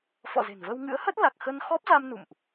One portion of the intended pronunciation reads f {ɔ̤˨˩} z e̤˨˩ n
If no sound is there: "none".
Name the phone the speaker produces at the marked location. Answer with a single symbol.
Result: ɔ̰˧˨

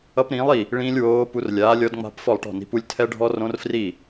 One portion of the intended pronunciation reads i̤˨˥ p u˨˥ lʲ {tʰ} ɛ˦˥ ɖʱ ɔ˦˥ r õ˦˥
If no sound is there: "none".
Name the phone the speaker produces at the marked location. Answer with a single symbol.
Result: tʰ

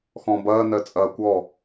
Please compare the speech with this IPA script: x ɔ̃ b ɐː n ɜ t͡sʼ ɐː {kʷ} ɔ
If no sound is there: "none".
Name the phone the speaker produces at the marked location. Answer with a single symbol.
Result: kʷ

